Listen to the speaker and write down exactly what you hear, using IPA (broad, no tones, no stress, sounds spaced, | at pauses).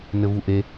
n ɘ v u ʔ e